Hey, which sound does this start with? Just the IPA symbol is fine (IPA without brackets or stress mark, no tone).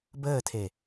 b